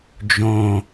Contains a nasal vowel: yes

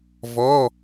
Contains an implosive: no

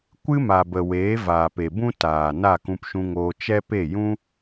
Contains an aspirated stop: no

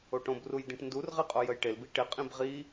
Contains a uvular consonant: yes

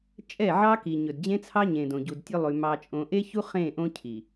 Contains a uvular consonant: yes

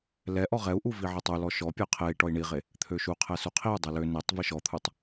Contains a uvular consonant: yes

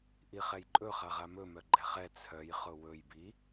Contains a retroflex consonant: no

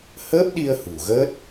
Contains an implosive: yes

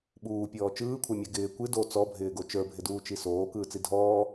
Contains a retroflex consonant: no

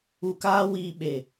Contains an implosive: yes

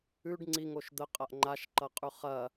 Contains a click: yes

